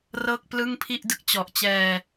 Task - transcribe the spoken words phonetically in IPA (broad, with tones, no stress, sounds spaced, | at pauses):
r ɤː˥˩ k̚ p l ɯ˥˩ ŋ pʰ i˥˩ ʔ d ɯ˥˩ k̚ t͡ɕ ɔ˨˩ ʔ t͡ɕ ɛː˧